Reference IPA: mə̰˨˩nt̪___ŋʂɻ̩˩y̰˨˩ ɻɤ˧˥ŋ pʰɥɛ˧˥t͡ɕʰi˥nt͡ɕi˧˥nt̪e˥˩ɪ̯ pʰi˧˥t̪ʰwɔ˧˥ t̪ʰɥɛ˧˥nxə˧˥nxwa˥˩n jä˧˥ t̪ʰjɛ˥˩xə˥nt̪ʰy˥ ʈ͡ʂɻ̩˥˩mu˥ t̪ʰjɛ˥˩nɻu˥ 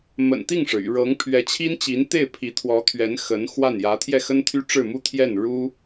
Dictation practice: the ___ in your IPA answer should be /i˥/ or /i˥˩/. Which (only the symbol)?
i˥˩